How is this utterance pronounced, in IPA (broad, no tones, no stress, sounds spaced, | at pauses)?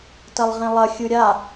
t ɐ lˠ ʁ ẽ lˠ ɐ xʲ ɯ ɾʲ a